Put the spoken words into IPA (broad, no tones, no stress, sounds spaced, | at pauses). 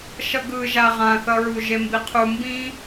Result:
ʃ ʌ ɡ ɯ ʒ a ʁ ã θ ʌ ɹ u ʒ e m b i qʰ u m b ĩ